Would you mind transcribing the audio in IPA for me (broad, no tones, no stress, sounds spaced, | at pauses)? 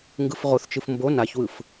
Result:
ŋ ɡ ɯ f ʁ o θ t͡ʃ ɯ f m b o n a ç w ɯ f